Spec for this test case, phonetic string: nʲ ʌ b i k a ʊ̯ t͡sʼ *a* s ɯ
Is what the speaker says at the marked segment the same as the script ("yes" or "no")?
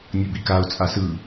yes